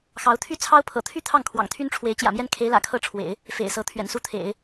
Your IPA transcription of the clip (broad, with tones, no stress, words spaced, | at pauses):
xɑ˧˥ʊ̯t̪ʰy˥˩t͡sʰɑ˥ʊ̯ pʰɤ̰˨˩t̪ʰy˥˧ t̪ʰɑ˥˩ŋkʰwɑ̰˨˩ŋt̪ʰy˥nʈ͡ʂʰwe˧˥ɪ̯ t͡ɕjä̰˨˩mjɛ˥˩nkʰe˧˥ɪ̯lä̰˨˩ kʰɤ˥˩ʈ͡ʂʰwḛ˨˩˦ɪ̯ | fḛ˨˩ɪ̯sɤ˧˥ t̪ʰɥɛ̰˨˩nsu˥˩t̪ʰḛ˨˩˦ɪ̯